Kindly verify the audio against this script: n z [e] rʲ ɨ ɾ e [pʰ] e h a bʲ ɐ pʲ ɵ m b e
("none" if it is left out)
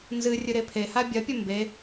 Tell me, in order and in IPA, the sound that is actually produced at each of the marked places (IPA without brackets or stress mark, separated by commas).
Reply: ɨ, pʰ